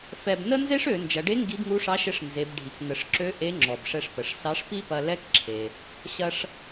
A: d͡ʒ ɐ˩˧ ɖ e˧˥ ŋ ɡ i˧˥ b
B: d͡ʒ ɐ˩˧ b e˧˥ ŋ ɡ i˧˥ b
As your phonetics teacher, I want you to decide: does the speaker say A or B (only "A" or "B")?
A